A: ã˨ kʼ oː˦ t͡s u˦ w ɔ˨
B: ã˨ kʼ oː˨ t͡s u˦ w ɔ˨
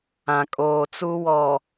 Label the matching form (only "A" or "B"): B